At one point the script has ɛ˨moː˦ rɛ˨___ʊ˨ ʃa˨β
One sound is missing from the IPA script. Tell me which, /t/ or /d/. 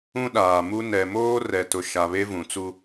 t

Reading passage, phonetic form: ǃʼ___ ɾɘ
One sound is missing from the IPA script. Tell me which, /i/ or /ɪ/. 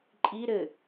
i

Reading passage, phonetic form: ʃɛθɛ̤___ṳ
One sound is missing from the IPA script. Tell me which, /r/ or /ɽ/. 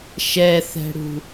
ɽ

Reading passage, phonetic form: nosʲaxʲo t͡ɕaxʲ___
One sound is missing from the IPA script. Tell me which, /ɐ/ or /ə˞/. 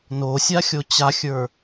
ə˞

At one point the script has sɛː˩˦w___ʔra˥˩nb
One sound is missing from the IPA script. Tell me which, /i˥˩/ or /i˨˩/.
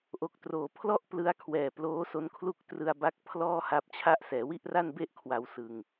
i˥˩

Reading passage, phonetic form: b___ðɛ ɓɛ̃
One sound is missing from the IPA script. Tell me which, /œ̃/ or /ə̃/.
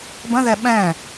ə̃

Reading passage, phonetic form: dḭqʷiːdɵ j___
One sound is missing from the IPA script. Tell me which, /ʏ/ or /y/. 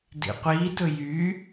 y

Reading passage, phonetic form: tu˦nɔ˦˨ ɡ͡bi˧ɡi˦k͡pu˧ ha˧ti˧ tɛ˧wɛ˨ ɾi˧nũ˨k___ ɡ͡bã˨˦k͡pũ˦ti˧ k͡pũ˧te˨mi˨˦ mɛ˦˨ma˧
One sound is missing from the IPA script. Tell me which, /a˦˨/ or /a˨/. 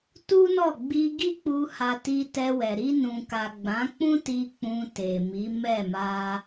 a˨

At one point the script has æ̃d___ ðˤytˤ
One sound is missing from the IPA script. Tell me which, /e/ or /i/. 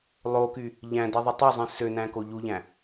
i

